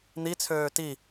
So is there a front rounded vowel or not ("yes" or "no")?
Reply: yes